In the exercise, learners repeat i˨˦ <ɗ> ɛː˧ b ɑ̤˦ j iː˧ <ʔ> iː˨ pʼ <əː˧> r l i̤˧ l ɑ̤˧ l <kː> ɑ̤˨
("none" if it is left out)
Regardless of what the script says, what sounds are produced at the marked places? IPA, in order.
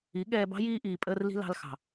ɠ, ʔ, əː˧, x

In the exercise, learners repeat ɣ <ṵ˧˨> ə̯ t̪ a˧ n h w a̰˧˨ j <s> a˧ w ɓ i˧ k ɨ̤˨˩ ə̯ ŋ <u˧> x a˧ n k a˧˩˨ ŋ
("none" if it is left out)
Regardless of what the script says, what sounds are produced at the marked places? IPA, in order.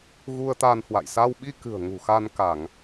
u˧, s, ṳ˨˩

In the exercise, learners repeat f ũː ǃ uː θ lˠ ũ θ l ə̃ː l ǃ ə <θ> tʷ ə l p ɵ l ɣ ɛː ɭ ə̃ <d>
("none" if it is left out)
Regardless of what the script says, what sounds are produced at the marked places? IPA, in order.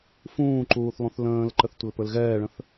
θ, θ

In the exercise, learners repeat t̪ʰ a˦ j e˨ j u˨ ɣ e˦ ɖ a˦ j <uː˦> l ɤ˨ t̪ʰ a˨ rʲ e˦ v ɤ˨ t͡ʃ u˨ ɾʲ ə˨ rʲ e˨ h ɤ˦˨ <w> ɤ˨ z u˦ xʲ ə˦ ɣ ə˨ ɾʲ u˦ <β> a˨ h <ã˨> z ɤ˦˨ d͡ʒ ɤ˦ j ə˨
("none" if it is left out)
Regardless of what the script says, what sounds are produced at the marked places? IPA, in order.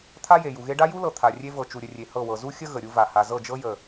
u˦, w, v, a˨

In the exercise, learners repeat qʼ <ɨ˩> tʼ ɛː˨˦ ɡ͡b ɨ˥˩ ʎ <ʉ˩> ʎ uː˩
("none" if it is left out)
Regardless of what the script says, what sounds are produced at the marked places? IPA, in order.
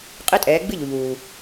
ɨ˦, u˩

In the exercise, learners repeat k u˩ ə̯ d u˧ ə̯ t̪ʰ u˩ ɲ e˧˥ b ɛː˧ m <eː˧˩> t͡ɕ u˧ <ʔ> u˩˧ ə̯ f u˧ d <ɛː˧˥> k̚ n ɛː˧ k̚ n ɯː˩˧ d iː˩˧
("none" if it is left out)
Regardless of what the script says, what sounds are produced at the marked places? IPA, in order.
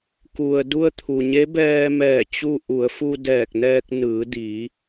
ɛː˧˩, ʔ, ɛː˧˩

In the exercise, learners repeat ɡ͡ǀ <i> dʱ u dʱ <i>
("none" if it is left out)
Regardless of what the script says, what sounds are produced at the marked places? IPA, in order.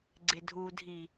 ɪ, i

